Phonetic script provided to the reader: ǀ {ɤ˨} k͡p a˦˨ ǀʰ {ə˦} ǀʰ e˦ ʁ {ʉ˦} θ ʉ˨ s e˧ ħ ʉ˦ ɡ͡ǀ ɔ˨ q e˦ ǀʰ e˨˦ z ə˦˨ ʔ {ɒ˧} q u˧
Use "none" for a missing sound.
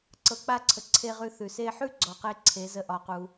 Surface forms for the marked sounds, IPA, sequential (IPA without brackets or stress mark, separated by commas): ɤ˧, ə˨, ʉ˦, ɒ˧